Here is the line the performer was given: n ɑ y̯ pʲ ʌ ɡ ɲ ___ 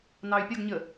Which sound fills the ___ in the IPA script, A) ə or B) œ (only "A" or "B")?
A